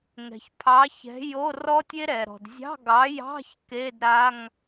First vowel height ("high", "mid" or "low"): mid